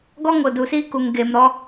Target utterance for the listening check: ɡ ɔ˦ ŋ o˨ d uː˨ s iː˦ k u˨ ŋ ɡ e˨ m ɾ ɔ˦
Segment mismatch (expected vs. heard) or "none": none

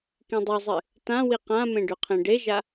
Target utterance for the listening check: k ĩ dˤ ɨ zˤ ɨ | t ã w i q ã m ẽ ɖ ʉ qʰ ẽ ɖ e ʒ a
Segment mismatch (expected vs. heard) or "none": none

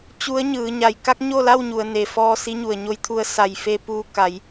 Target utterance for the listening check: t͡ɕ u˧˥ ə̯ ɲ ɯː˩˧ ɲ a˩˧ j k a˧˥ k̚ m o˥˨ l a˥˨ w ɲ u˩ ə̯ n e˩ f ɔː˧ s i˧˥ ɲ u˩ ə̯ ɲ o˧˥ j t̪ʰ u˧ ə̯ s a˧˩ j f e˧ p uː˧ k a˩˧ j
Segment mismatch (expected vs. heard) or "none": m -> ɲ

